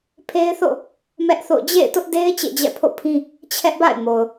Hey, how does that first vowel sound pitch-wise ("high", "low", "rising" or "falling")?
high